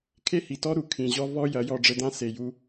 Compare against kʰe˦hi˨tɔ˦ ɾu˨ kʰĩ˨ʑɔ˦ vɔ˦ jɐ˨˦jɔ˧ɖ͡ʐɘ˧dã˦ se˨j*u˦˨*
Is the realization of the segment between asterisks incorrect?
yes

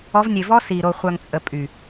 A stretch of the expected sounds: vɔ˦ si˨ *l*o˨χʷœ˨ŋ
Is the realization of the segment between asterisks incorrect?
yes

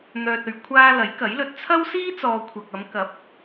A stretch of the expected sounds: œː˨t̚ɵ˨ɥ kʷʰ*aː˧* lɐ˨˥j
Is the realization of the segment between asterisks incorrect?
no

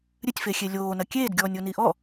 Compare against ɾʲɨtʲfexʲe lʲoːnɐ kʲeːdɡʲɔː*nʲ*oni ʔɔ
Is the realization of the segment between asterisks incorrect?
no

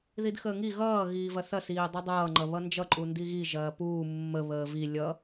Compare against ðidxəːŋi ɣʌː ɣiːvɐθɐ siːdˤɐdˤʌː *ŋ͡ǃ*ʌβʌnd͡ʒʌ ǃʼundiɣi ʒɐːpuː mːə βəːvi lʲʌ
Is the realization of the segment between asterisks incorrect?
no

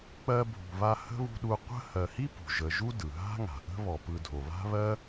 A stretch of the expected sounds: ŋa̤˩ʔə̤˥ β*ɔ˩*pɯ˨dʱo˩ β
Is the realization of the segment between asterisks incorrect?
no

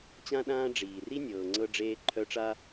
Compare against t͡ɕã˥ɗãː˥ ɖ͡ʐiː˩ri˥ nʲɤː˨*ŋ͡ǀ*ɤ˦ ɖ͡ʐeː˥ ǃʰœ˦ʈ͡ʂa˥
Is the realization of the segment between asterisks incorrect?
no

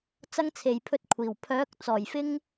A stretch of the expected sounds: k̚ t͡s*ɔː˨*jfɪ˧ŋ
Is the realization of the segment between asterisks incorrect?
yes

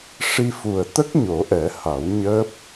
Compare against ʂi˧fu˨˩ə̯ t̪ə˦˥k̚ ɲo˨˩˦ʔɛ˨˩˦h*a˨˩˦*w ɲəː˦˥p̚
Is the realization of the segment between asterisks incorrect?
no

